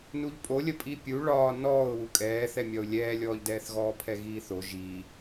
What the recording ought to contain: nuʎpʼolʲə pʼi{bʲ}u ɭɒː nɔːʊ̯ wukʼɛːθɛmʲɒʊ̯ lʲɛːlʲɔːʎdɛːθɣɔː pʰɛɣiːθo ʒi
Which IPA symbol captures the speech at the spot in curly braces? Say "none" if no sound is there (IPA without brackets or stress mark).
pʲ